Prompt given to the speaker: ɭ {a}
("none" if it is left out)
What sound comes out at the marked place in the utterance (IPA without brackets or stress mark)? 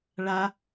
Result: a